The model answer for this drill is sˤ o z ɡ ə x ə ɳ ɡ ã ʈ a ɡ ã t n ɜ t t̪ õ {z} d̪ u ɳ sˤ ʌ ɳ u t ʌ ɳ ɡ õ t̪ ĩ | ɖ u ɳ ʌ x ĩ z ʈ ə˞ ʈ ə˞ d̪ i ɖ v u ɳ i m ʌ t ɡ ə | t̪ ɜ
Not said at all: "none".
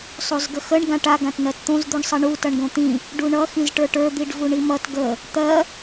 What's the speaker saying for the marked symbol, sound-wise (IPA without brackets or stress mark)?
z